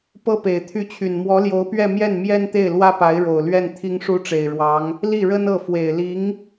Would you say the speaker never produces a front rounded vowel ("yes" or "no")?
no